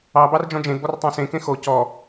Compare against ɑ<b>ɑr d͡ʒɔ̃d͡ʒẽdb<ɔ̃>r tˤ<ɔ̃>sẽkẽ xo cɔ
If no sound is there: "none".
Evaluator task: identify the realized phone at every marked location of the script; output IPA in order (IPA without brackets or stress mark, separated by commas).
b, ɔ, ɑ̃